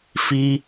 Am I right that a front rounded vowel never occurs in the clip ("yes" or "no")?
yes